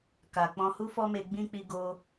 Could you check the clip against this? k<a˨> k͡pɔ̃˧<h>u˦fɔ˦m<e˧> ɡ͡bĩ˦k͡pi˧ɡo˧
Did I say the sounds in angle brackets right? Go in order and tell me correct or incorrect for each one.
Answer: correct, correct, correct

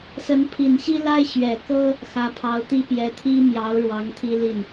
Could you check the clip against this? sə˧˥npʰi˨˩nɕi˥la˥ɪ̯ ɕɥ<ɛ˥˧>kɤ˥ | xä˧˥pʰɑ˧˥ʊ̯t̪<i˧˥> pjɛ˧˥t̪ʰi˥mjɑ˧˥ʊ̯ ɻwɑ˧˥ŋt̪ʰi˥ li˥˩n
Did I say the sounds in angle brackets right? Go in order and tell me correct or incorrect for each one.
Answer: incorrect, incorrect

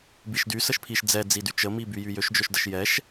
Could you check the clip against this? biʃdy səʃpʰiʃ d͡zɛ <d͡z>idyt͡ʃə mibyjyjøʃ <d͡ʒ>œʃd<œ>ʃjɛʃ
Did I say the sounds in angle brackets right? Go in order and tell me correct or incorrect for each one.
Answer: correct, correct, incorrect

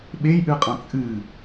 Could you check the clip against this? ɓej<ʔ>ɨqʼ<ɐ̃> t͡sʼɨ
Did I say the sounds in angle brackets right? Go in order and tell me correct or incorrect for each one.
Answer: correct, correct

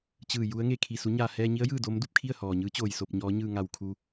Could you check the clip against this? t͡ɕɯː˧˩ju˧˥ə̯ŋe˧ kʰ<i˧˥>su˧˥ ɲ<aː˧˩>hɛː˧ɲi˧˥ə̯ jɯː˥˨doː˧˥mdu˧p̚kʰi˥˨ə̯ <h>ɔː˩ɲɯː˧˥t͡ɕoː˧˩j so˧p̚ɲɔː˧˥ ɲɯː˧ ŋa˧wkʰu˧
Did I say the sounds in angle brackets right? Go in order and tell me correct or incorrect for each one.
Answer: incorrect, correct, correct

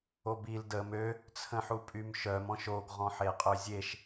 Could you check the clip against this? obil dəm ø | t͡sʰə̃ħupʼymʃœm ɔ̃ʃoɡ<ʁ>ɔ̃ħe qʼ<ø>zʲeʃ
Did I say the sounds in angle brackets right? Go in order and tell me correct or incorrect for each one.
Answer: correct, correct

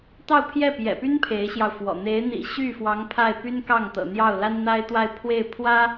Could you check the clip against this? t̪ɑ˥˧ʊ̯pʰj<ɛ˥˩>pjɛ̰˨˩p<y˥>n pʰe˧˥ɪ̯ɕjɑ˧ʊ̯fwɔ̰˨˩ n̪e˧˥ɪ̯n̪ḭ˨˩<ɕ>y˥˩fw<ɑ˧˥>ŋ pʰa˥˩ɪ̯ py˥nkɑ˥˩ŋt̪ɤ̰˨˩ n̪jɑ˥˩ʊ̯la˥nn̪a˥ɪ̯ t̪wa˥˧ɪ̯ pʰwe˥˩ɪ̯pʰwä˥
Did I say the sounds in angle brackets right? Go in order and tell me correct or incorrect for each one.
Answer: correct, correct, correct, correct

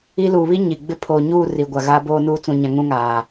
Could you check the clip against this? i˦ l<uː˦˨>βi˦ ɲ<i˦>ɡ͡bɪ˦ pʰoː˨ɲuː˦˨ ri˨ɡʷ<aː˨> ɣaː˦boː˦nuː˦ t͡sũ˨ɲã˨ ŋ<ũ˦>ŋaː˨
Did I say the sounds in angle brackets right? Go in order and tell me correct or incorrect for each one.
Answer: incorrect, incorrect, incorrect, correct

